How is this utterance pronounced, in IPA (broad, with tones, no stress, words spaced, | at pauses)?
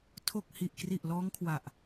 tʰo˨˩k̚ hi˨˩ʔkri˨˩ʔ lɔː˦˥ŋkʰwa˨˩ʔ